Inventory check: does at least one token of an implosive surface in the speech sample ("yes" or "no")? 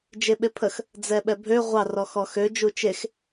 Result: yes